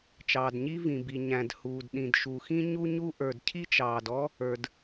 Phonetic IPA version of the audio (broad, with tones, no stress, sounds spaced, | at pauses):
t͡ʃ ɑː˩ d ɲ i˥ v ĩ˩ b i˩ ɲ æ̃˩ d h uː˩ d ɗ ĩ˩ d ʃ u˩ x ĩ˥ ɲ u˥ ɲ u˥ ʔ ə˞˩ d cʰ i˥ t͡ʃ ɑː˩ d ɔ˥ | ə˞˩ d